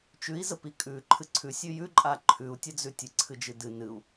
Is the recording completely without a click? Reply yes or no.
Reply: no